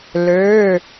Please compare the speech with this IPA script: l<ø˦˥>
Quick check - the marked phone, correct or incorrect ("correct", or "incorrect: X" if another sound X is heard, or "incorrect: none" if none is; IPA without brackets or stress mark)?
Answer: incorrect: ø˩˧˩